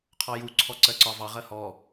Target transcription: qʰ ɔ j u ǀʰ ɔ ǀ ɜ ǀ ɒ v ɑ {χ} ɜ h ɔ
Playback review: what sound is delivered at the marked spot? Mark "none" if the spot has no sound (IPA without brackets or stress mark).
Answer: ʁ